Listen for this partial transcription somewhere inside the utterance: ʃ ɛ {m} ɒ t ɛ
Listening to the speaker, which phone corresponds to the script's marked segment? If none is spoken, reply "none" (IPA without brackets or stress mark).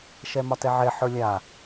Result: m